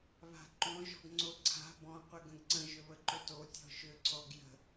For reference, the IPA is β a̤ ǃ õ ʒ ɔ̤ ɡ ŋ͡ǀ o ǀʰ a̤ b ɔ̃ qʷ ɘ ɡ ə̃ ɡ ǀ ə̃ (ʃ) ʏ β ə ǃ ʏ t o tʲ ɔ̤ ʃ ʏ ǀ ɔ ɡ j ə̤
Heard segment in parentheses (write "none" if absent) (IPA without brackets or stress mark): ʒ